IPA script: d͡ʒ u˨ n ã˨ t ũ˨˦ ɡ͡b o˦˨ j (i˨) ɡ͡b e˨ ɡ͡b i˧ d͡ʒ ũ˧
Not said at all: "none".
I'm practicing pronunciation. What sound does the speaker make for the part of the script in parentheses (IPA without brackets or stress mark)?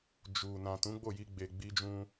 i˧